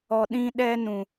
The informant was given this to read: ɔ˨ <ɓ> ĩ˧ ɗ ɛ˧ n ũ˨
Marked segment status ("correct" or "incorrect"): incorrect